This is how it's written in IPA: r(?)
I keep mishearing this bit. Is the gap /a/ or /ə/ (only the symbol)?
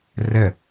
ə